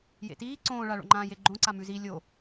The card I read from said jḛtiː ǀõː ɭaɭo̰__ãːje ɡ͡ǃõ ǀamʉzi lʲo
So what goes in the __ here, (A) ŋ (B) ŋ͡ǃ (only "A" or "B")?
B